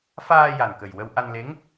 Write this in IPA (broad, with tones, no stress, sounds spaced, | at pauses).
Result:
f aː˧ j a˨˩ n k ə˨˩ j w ə˧ w ʔ a˧ n l e˧˥ ŋ